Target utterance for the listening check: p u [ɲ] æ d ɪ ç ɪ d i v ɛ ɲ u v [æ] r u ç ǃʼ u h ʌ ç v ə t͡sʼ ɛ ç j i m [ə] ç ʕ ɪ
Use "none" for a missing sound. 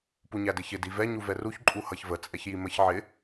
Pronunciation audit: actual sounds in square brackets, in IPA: ɲ, ɛ, ə

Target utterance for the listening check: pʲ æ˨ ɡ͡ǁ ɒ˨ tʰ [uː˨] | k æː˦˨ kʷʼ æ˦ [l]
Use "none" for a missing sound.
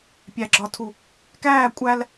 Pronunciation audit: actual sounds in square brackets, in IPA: u˨, l

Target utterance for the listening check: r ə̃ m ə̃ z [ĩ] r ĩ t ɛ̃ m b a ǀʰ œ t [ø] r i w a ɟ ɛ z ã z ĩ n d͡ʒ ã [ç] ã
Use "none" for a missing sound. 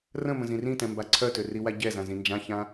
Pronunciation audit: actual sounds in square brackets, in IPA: ĩ, ø, ç

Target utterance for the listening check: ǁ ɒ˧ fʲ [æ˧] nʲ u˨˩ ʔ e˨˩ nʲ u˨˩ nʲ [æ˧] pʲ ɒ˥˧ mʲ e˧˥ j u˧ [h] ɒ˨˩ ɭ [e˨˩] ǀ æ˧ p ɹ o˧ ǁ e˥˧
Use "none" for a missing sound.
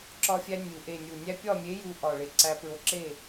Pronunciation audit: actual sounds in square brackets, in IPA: æ˧, æ˧, ʔ, e˨˩

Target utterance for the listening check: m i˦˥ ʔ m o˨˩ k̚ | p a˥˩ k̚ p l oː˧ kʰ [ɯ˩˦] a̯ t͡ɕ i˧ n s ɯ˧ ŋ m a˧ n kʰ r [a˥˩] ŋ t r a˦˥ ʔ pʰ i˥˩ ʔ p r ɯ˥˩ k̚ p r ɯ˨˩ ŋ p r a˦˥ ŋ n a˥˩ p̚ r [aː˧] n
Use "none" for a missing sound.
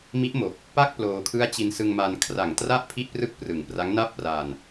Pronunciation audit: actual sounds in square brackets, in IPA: ɯ˦˥, a˨˩, aː˧

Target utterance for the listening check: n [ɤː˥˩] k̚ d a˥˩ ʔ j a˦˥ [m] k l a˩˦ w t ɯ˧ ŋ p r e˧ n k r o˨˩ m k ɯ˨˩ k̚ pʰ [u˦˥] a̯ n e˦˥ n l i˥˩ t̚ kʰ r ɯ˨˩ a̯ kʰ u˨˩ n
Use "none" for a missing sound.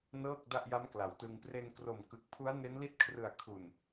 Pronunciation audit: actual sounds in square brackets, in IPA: ɤː˥˩, m, u˦˥

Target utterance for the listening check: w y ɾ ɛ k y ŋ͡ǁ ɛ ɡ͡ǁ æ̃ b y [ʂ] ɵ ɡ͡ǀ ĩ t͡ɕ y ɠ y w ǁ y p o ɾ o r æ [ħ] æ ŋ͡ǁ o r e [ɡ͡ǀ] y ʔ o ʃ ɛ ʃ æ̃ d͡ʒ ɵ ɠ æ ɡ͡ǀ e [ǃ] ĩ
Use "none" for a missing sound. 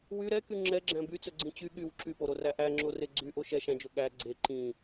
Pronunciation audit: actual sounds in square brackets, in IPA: t͡s, ʔ, ɡ͡ǀ, ǃ

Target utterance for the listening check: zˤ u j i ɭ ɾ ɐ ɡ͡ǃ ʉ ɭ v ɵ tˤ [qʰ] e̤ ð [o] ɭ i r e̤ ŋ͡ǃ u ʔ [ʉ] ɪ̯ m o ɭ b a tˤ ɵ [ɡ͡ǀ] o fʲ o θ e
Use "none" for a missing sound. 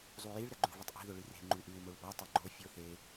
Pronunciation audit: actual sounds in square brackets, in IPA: ʔ, ɵ, ʉ, ɡ͡ǃ

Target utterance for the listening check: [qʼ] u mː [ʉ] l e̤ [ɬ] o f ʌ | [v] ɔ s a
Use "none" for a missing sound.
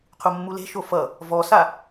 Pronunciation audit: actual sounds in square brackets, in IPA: qʰ, u, ʃ, v

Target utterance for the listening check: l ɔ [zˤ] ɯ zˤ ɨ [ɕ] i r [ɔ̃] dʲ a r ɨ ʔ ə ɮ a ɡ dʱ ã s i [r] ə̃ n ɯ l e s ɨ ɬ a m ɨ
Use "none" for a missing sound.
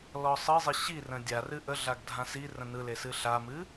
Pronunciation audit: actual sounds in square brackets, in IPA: sˤ, ɕ, ə̃, r

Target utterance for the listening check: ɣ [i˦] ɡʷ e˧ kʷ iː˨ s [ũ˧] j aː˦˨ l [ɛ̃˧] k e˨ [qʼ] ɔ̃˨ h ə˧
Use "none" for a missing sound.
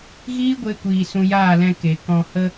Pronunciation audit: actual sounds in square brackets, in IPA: iː˦, ũ˧, ɛ̃˧, k

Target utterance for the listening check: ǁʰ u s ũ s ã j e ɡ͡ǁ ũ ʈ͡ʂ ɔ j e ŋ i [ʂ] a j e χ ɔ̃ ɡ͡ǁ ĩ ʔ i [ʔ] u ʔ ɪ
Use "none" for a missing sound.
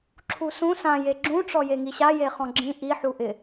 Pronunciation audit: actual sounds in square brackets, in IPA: ɕ, ħ

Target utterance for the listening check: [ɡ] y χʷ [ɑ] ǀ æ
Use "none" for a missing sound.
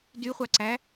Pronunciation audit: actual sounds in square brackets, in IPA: d, ɑ

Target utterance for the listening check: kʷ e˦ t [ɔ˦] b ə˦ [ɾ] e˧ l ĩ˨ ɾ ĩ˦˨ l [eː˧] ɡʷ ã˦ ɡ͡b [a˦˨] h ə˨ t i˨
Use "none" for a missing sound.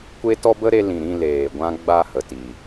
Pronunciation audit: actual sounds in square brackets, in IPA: ɔ˦, ɾ, eː˨, a˦˨

